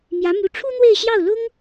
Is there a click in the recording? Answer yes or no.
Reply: no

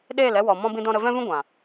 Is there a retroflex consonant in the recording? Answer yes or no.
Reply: no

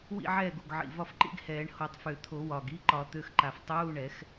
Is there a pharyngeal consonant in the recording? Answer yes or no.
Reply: yes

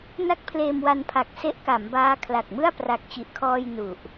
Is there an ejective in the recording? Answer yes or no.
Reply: no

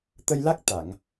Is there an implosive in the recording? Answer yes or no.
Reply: no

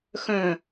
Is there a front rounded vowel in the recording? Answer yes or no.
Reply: yes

